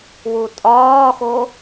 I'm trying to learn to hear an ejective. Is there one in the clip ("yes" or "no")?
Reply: yes